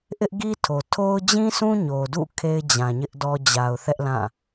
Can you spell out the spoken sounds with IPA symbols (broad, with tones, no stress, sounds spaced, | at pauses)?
ʔ ɪ˦ ʔ ɡ i˦ tʰ o˨ tʰ o˦ ʊ̯ d͡ʑ ĩ˦ s ũ˦ ɲ o˨ d ṵ˦˨ kʰ e˦ ɪ̯ d͡ʑ ã˨ ɲ ɪ˦ ʔ d ɔ˦ d͡ʑ a˨ ʊ̯ θ ɛ˦ ʔ l ã˦˨